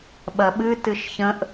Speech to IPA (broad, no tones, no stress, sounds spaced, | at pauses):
ɓ ɐ ɓ ɨ t ɨ ʃ ç ə̃ ʔ